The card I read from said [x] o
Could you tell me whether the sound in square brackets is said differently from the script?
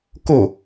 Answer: yes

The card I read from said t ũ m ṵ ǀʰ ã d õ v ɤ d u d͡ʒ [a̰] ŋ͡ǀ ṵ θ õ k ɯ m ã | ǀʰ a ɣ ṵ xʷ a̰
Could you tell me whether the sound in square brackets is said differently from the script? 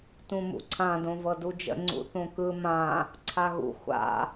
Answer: yes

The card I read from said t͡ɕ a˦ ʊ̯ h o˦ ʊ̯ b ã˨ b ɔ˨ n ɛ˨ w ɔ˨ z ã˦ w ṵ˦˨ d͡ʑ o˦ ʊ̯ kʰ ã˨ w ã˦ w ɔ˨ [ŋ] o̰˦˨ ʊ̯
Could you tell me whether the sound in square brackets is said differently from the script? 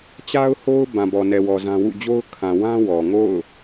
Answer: no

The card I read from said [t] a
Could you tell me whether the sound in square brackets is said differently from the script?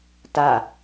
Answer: no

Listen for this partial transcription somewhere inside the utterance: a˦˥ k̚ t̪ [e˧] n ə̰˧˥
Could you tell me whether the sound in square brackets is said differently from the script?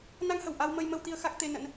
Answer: no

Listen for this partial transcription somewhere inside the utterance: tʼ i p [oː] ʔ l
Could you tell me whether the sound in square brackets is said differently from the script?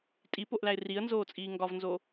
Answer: yes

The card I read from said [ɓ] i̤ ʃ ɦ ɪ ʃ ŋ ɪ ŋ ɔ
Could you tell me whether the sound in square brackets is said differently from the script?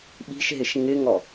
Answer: no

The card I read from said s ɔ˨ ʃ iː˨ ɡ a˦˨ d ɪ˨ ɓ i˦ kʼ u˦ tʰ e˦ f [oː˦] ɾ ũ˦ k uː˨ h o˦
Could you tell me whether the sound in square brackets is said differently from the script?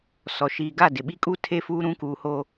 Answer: yes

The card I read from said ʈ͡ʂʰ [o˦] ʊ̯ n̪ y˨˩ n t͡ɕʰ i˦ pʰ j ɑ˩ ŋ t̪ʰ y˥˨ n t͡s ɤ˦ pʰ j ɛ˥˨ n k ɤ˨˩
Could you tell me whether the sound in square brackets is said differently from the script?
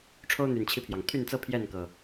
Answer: no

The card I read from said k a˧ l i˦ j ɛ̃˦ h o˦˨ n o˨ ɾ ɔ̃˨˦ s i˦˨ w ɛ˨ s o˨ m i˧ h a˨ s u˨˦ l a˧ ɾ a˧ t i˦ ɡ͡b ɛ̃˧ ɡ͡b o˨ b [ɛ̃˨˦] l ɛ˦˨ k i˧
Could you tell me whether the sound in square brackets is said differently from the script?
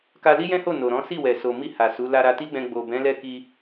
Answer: no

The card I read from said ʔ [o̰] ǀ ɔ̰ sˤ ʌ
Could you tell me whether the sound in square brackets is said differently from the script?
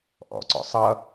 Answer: yes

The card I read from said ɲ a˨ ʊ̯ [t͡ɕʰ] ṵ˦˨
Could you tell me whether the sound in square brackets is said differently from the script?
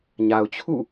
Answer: no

